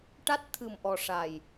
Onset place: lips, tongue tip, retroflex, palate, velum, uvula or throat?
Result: retroflex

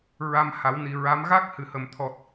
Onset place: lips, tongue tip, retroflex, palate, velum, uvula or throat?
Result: tongue tip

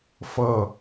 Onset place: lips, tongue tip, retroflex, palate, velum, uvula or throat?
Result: lips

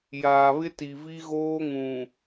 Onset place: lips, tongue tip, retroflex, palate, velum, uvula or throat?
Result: palate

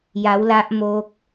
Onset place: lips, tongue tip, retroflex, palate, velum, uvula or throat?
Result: palate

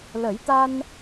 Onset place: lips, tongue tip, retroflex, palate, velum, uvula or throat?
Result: tongue tip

